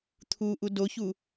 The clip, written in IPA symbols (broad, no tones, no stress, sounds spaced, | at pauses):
t̪ʰ u ʔ u d o ç u